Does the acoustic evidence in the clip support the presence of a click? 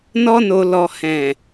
no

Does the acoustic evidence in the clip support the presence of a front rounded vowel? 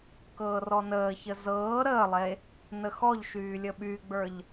yes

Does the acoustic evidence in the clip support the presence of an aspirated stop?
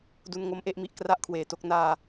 yes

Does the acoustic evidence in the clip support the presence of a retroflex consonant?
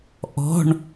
yes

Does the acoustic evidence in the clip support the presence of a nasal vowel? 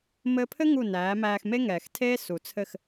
no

